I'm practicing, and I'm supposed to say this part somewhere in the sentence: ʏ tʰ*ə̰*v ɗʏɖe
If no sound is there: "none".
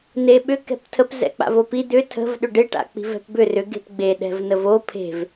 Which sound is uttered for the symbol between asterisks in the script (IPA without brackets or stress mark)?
ə̤